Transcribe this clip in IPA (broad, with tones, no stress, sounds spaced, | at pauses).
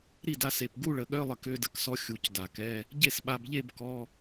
ɾ i˥˩ d a˧ s e˨˩ p ɡ u˥˧ ɭ ə˨˩˦ ɠ œ˧˥˧ lˠ ə˧ k ø˧˥˧ d ə˧˥˧ k s ɔ˧ xʲ u˨˩˦ c d a˨˩ k ɛ˧˥˧ | ɟ e˥˩ s ɓ a˧ b ʎ e˥˧ b k ɔ˧˥˧